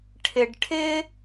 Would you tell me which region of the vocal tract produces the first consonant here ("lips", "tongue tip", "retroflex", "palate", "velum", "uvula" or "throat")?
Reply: retroflex